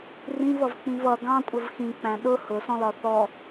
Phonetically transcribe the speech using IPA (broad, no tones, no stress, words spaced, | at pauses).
rĩvʌvk͡pĩv ʌ ɡɑ̃kʷʼəv xĩk͡pæ̃ ɗʊ hʊsɔ̃lɒ θɔ